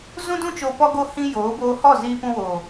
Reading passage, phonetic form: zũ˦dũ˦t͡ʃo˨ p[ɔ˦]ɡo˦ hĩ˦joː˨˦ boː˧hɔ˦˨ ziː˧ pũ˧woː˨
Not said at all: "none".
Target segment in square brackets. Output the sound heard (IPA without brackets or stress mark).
ɔ˦